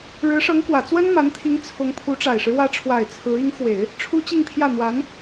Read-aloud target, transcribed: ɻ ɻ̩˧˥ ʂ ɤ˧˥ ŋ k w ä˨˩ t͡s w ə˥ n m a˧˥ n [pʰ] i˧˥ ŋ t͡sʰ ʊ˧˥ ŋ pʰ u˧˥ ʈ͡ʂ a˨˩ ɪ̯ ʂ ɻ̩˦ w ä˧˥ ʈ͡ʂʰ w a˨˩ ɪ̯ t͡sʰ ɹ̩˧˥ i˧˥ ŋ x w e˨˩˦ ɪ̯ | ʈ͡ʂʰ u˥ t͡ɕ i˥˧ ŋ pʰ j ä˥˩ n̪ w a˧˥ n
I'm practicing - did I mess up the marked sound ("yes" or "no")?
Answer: yes